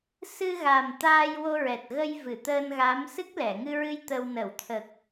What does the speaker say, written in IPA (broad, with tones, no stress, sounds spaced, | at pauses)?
s ɨ˧ ɣ a˨˩ m t̪ aː˧ j w o˧ ɹ ɛ˨˩ t̚ ɣ ə˧ j v ɨ˨˩˨ t̪ əː˧ n ɣ a˧˥ m s ɨ˦˥ k̚ l ɛ˨˩˨ ŋ ɨ˧ ɹ ɨ˧ j t̪ ə˧ w n ə˨˩˨ w t̪ʰ ə˨˩ k̚